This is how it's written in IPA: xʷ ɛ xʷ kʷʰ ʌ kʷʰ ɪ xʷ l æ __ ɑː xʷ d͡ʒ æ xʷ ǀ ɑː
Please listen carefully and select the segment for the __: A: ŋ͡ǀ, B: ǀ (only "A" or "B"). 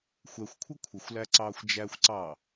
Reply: B